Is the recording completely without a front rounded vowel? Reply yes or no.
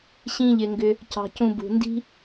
no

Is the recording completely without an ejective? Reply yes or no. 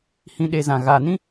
yes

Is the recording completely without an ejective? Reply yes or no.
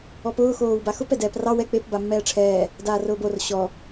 yes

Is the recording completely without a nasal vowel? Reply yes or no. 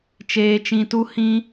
no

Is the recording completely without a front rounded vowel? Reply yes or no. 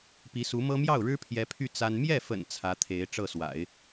no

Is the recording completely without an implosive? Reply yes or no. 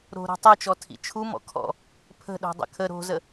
no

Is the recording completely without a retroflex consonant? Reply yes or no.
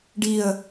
no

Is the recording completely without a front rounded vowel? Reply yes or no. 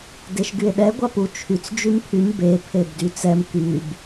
no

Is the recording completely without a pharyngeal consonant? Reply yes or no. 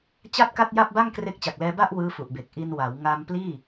yes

